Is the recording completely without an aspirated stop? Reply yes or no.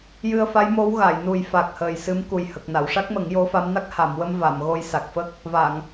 yes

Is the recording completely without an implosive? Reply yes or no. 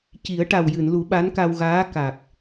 no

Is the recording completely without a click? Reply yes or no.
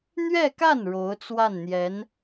yes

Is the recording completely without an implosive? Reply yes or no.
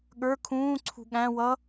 no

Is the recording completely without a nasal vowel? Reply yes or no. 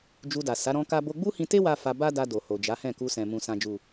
no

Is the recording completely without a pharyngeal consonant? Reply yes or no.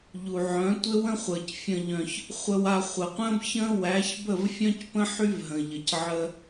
no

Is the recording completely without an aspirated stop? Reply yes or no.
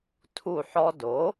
no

